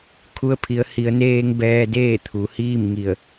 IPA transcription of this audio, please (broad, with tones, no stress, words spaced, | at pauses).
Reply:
kʰu˧ə̯pʰi˩˧ə̯ hi˩˧ə̯neː˧ŋ bɛː˧deː˥˨ t̪ʰu˩˧hiː˥˨m ŋi˧˩ə̯